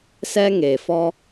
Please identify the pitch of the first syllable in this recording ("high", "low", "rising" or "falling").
high